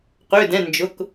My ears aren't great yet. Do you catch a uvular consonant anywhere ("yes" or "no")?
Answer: yes